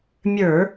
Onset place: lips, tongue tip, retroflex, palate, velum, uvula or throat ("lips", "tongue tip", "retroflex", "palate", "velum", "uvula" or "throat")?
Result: lips